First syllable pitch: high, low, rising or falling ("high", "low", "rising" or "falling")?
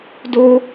high